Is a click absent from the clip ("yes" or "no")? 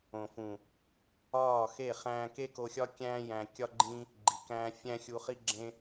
no